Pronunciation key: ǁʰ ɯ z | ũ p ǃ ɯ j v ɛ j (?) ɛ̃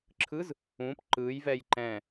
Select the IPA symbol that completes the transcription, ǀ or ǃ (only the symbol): ǃ